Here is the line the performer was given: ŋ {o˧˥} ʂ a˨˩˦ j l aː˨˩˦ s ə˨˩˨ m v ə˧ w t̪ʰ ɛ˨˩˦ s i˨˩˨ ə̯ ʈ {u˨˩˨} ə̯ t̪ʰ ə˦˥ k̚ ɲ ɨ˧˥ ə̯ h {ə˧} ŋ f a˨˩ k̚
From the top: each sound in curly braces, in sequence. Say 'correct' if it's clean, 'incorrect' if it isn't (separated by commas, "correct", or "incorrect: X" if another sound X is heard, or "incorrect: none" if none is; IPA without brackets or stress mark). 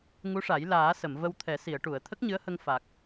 incorrect: u˧˥, correct, correct